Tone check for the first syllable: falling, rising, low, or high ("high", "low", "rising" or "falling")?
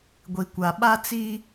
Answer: low